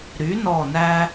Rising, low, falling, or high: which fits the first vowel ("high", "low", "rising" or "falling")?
rising